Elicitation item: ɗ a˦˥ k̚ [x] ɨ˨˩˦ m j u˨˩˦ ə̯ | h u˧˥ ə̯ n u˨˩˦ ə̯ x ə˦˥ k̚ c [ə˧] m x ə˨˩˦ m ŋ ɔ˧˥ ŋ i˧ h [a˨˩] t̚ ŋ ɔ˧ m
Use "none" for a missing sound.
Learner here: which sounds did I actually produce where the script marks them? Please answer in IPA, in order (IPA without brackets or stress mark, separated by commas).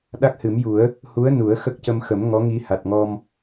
h, ə˧, a˨˩